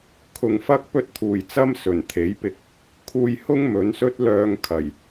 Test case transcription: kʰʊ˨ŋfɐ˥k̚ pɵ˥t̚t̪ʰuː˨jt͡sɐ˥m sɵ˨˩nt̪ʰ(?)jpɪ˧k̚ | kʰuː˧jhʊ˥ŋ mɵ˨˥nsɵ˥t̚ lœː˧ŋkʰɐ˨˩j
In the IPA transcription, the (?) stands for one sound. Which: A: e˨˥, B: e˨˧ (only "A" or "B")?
A